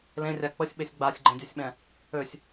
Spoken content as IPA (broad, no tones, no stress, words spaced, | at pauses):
lẽrʲa k͡pəsʲɓesʲ ɡ͡basʲɡ͡ǃẽdʲɛsʲɓɛ̃ | øsʲ